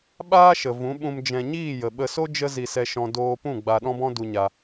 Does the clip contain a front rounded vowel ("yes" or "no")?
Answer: no